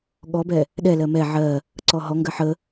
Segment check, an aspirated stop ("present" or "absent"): absent